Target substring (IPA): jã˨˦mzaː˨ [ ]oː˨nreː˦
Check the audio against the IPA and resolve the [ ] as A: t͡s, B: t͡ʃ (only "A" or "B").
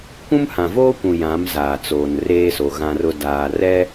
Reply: A